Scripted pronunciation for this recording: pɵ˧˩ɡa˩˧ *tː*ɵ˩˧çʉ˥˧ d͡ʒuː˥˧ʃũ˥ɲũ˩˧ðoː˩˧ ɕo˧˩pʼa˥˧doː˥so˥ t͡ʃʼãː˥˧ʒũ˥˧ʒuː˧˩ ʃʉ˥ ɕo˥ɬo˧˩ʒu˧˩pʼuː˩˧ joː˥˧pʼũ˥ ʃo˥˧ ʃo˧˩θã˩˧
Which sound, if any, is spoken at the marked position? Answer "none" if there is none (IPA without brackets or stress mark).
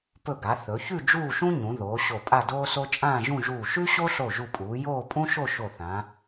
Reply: θ